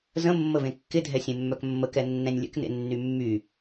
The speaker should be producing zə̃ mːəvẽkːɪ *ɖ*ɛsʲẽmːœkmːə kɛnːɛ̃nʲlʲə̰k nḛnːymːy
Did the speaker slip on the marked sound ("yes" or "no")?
yes